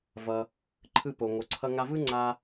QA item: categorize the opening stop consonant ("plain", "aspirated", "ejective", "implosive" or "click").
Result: click